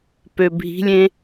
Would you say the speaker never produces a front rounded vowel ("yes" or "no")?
no